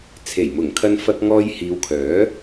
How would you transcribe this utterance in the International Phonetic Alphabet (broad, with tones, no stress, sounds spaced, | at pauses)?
t͡sʰ e˨˩ j m ʊ˨˩ ŋ kʰ ɐ˧ n f ɐ˧ k̚ ŋ ɔː˧ j h iː˨˧ w kʰ œː˨˥